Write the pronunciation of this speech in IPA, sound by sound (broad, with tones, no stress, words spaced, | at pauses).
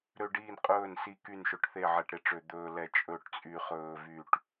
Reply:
ɾø˦ɖiː˥˨nqʼɵː˥˨nsi˦ ky˥˨nʃɵ˦ʈθe˥˨ ʕɛ˦ʈɾe˦ʈ͡ʂø˦ d̪ɵː˦lɛ˦ t͡ʃʼɵ˥˨ʈt͡sʼy˦ χɵː˦vy˥˨ʈ